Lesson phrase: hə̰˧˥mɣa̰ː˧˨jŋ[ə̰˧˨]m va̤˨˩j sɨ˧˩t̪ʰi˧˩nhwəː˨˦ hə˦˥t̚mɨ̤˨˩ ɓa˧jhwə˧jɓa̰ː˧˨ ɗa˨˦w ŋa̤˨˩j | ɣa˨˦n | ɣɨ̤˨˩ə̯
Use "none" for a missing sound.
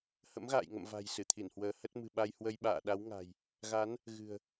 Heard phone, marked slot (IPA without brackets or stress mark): ə̰˧˨